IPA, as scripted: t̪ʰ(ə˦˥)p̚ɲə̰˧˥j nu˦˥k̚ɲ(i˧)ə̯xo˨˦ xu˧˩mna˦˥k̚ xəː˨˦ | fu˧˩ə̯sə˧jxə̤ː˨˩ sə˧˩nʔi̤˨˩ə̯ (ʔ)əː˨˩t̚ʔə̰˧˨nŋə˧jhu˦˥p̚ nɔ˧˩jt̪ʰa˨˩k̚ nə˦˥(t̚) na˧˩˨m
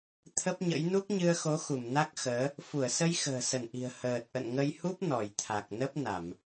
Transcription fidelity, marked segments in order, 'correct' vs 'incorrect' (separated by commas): correct, incorrect, incorrect, incorrect